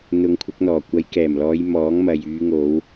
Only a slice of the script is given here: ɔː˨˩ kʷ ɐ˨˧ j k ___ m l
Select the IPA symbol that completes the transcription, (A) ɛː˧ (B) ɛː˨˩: B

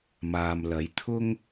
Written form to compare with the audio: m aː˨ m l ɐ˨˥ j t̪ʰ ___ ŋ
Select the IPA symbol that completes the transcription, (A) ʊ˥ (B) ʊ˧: A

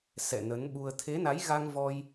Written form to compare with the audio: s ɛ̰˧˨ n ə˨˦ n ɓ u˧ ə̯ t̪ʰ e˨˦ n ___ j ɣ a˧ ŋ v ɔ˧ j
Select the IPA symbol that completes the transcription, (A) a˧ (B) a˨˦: B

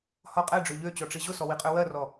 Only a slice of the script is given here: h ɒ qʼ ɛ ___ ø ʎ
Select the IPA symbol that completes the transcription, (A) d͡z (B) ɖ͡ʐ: B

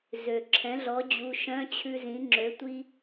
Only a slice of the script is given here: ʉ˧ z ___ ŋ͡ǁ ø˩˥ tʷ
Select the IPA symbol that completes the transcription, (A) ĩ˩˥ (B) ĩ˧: A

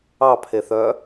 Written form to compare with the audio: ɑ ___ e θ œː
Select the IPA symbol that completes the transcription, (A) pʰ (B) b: A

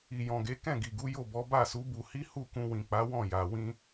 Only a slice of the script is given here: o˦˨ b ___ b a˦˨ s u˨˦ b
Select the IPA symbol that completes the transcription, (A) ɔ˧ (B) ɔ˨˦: B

